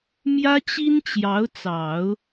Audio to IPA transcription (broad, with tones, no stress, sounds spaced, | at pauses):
m j ä˥ t͡ɕ i˥ n t͡ɕ j ɑ˧˥ ʊ̯ t͡s ɑ˨˩˦ ʊ̯